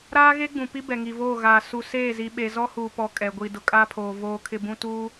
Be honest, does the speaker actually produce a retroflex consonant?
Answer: no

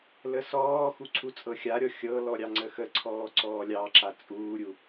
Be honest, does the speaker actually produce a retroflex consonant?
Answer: no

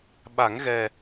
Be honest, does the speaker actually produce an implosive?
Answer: yes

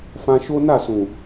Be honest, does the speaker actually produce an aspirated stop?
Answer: no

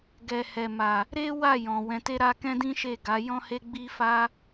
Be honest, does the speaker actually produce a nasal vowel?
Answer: yes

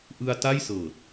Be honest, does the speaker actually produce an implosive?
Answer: no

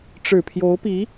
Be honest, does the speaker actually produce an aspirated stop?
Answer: yes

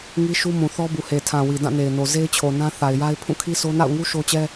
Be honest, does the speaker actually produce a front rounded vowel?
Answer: no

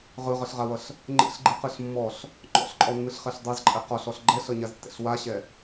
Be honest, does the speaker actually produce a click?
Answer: yes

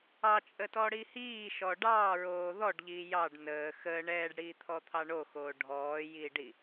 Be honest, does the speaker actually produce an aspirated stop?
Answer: yes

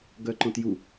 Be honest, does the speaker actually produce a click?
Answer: yes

